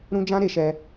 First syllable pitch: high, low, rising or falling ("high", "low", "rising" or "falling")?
high